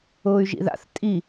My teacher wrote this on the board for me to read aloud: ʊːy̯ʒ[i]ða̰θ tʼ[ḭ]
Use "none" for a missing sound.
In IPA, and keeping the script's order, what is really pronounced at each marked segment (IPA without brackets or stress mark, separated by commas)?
ḭ, i